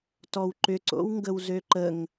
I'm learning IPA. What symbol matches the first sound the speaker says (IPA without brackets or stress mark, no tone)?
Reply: t